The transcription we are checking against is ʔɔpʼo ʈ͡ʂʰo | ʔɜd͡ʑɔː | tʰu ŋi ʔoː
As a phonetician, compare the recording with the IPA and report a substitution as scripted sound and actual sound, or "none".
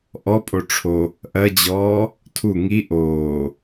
none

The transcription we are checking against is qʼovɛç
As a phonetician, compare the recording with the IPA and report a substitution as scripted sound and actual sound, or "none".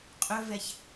o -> ɵ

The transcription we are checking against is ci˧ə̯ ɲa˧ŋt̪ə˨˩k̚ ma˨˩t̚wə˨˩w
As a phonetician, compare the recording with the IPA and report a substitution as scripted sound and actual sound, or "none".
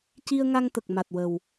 ɲ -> ŋ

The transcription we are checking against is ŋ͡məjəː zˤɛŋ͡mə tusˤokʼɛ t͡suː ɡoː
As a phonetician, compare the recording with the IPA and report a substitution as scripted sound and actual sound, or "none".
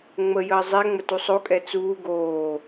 none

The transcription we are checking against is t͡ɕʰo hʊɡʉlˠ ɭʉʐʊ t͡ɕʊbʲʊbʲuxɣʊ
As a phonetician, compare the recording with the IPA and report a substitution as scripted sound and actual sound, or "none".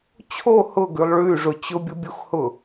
ɣ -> h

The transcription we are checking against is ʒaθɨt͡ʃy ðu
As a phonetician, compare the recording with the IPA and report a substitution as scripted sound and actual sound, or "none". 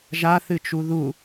y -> u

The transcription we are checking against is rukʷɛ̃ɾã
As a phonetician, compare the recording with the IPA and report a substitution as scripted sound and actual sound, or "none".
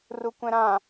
none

